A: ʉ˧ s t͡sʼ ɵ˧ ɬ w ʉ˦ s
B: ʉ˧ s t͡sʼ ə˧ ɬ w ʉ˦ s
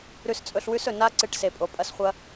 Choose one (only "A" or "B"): A